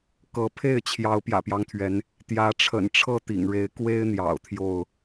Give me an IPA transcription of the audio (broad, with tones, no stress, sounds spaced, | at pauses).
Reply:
k ɤ˨˦ pʰ e˥˨ ɪ̯ t͡ɕʰ j ɑ˨˦ ʊ̯ p j ä̰˨˩ p j ɑ˦ ŋ t̪ʰ ɥ ɛ˨˦ n | t̪ j ä˨˦ ʈ͡ʂʰ ə̰˨˩ n ʈ͡ʂʰ ɤ˥˨ t̪ ḭ˨˩ ŋ ɻ e˨˦ ɪ̯ k w e˦ ɪ̯ n̪ j ɑ̰˨˩ ʊ̯ t̪ʰ j o˥˨ ʊ̯